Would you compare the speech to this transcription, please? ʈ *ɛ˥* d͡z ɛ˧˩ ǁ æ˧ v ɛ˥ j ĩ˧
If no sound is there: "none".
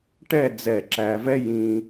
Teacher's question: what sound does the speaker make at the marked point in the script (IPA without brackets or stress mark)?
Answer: ɛ˥˧